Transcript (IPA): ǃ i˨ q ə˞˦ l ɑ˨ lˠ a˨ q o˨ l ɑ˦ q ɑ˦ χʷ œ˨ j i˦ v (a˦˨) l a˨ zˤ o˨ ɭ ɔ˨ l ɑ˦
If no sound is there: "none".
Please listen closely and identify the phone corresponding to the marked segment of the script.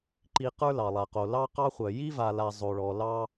a˨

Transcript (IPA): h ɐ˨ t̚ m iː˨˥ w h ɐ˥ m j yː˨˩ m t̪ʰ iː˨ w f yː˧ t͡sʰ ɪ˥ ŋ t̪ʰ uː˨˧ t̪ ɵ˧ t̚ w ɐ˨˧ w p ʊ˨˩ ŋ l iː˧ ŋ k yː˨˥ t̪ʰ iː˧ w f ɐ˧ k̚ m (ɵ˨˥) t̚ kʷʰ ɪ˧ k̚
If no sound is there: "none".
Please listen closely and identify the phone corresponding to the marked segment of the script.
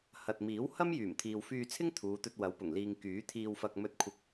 ɵ˧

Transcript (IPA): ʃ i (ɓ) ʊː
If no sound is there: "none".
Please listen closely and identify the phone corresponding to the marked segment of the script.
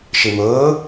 m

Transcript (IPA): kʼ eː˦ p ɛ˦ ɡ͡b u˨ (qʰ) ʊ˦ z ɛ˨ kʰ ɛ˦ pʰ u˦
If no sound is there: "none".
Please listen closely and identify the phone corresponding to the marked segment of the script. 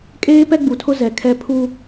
tʰ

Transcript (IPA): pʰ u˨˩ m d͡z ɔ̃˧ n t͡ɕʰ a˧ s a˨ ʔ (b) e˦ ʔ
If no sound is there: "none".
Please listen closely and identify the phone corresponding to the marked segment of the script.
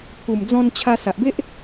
b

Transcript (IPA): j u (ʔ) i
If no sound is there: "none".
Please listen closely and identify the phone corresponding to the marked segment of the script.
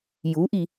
ʔ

